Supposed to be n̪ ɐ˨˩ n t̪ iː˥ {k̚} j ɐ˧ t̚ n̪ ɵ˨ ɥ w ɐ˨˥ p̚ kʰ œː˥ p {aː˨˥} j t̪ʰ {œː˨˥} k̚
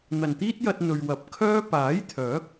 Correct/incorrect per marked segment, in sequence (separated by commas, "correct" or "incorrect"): incorrect, correct, correct